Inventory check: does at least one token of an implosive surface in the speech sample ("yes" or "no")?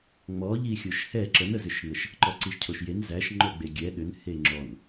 yes